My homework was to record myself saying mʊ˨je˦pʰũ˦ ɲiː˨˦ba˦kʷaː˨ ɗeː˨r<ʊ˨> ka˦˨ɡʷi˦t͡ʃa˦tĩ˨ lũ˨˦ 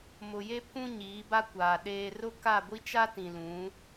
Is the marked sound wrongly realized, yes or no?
yes